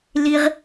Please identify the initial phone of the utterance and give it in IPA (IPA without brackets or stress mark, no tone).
l